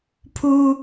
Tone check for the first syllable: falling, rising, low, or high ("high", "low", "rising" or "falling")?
high